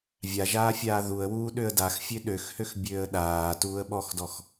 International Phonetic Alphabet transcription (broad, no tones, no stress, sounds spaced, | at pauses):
vʲ a ʒ aː fʲ aː ð u ə̯ w uː ɗ ø ə̯ d a x fʲ ø ɗ ø x h ø x bʲ øː ə̯ ɗ aː t uː ə̯ ɓ ɔ x d ɔ x